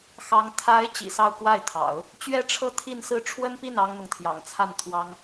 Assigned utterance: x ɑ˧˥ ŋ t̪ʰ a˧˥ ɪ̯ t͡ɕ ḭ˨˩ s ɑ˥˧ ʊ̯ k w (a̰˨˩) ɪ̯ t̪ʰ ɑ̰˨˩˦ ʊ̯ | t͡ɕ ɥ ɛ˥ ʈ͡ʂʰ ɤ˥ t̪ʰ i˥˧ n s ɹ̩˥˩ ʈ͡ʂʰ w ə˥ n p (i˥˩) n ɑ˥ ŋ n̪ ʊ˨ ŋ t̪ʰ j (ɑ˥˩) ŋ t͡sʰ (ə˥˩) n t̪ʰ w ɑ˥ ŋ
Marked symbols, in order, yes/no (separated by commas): no, yes, no, no